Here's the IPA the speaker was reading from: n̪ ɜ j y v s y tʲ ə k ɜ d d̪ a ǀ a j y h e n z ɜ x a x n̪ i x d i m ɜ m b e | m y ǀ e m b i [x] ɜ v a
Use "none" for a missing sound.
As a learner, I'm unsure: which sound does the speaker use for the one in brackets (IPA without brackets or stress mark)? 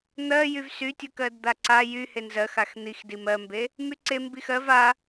x